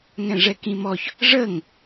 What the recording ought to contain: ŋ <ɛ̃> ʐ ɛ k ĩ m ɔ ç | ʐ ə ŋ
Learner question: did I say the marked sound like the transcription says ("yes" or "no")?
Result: yes